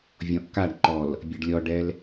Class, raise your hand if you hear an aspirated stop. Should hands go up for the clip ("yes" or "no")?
no